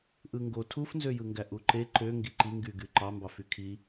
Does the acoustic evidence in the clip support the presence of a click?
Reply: yes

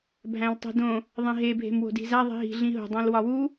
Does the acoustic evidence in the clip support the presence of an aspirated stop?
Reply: no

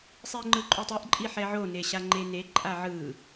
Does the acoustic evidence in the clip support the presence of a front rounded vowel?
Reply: no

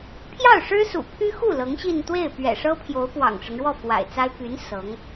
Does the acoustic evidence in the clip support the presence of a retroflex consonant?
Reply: yes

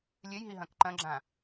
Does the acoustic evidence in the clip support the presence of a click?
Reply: yes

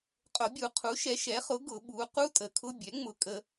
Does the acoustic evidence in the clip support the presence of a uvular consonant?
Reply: yes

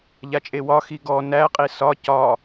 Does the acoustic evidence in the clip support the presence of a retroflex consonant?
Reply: no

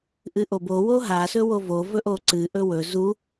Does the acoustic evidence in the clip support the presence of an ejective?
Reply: no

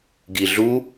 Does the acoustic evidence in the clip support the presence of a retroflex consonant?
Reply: no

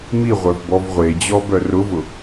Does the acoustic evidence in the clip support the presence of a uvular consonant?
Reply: yes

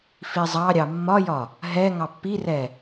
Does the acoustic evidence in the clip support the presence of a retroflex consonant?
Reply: no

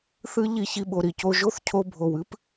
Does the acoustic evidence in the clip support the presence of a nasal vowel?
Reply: no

